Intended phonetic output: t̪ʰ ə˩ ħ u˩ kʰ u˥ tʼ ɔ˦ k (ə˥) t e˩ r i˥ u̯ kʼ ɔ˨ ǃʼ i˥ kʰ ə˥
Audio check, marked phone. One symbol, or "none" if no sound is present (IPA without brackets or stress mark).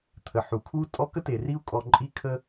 ə˥